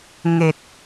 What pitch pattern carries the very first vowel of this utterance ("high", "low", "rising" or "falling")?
low